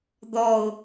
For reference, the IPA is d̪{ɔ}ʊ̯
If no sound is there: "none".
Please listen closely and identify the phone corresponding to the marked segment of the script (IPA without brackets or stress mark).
ɔ